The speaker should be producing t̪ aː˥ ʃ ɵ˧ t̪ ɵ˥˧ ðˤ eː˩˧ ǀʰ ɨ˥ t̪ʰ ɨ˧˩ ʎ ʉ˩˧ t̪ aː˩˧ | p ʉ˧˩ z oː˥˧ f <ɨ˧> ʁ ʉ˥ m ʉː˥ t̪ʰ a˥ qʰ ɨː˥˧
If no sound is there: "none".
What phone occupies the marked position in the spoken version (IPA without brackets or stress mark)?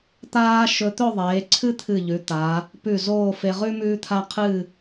e˧